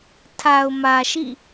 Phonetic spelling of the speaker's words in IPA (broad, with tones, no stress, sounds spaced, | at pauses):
tʰ a˨ ʊ̯ m ä˨ ʃ ḭ˦˨